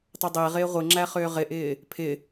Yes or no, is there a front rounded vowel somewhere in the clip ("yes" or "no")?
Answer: yes